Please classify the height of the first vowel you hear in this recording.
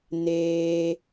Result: mid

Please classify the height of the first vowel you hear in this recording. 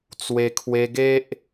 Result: mid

